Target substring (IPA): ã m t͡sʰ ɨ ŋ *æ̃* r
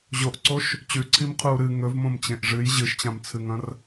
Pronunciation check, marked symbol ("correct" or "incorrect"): incorrect